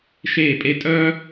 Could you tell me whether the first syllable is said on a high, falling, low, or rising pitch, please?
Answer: falling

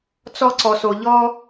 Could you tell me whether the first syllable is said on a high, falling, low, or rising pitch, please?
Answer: high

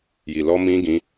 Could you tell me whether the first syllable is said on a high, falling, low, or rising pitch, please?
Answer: low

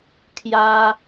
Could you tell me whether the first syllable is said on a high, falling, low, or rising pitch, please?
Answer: high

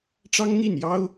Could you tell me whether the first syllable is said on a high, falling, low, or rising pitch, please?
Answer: high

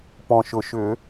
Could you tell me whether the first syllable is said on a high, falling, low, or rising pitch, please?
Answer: low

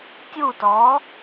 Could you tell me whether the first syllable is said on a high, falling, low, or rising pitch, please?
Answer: falling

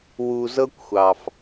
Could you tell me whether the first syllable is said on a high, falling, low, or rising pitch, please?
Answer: low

